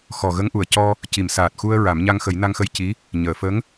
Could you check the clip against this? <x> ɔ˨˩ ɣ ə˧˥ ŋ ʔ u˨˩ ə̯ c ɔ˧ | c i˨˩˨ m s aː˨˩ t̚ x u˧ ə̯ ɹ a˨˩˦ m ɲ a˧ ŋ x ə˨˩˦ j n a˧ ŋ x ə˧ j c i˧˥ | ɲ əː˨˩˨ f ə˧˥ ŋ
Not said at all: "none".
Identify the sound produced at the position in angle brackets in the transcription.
x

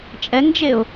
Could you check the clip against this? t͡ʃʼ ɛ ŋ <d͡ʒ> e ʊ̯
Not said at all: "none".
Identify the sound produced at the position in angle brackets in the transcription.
d͡ʒ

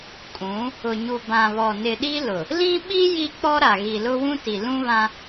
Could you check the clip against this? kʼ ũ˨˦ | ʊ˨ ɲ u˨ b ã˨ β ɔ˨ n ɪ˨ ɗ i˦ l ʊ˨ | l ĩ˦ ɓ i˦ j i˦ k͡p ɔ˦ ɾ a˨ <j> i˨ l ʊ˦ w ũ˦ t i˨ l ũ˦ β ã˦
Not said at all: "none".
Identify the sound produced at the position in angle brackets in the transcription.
ɣ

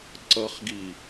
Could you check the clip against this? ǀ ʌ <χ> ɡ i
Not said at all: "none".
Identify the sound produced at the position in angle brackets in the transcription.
χ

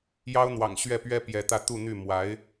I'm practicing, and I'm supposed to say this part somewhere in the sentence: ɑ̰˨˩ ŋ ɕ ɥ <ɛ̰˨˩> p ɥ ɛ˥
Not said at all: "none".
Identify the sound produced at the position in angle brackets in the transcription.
ɛ˥˩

